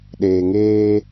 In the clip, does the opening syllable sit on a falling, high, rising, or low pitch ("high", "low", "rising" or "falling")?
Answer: low